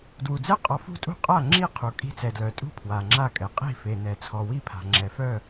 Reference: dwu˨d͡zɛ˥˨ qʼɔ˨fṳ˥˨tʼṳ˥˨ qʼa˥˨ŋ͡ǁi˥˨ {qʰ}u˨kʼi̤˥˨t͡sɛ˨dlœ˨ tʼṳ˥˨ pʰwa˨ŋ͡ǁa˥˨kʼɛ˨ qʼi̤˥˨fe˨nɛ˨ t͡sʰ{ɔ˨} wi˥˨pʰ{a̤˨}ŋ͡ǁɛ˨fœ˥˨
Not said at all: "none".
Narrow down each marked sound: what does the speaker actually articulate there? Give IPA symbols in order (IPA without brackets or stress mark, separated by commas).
qʰ, ɔ˨, a̤˨